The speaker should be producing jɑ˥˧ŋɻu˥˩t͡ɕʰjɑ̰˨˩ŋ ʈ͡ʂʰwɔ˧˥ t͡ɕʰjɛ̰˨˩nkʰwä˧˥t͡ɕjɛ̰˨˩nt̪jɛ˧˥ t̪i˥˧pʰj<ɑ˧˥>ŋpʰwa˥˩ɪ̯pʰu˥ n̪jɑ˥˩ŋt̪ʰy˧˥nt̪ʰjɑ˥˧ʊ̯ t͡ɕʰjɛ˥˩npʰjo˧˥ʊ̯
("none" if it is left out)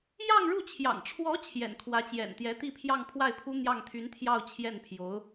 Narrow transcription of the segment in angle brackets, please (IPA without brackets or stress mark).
ɑ˥˧